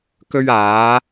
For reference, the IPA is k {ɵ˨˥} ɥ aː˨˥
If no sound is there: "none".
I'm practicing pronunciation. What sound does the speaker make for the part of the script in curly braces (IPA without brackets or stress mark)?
ɵ˥